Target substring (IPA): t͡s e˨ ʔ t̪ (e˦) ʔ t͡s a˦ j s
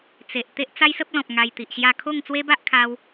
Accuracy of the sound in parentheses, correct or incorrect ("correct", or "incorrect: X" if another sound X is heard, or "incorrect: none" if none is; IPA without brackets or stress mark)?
correct